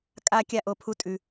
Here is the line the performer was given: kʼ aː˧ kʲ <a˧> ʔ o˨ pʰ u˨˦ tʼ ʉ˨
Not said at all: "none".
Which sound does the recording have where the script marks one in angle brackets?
a˧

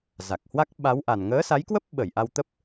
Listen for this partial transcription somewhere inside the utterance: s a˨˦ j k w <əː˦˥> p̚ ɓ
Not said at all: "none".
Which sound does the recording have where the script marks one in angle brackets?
ə˦˥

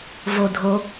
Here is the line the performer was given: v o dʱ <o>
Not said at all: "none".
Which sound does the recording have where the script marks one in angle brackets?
o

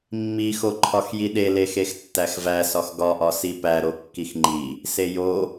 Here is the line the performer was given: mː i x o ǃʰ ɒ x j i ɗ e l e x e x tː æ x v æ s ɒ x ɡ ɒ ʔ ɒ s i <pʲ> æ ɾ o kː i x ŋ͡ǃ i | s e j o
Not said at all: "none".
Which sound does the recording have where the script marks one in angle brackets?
p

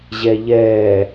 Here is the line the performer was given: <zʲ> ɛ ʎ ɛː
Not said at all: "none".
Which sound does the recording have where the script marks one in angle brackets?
ʑ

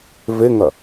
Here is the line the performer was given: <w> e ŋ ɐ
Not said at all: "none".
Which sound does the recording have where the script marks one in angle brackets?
v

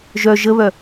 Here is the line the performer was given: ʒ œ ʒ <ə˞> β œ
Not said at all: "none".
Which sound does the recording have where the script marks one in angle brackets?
ə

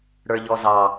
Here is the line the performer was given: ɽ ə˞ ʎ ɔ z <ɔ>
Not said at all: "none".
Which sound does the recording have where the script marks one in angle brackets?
ɑ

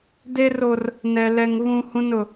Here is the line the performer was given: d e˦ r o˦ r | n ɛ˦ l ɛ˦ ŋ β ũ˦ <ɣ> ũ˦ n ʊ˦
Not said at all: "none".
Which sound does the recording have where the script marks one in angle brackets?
h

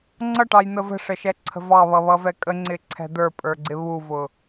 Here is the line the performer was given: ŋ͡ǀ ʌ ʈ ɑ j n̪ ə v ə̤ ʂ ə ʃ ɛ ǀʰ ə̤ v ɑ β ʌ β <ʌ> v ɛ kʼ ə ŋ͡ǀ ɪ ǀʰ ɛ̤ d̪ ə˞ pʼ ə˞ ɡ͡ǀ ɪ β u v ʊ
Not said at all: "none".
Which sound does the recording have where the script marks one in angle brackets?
ʌ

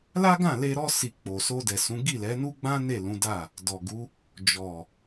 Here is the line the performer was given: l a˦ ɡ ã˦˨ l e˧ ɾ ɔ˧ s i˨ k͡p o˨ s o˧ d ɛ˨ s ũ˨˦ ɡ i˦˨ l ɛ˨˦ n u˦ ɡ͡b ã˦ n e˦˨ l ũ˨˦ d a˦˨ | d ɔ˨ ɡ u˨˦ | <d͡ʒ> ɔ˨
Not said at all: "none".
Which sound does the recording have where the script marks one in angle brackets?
d͡ʒ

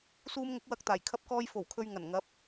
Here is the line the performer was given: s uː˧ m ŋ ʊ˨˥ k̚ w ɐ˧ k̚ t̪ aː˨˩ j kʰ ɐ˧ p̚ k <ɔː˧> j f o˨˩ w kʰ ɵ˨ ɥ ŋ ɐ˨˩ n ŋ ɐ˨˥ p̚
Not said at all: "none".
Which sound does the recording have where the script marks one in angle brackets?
ɔː˧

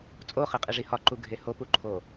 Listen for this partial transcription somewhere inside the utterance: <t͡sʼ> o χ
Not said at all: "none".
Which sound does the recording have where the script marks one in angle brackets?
t͡sʼ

